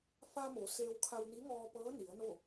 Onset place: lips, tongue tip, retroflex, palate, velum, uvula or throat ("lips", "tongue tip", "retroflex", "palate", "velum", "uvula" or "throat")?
lips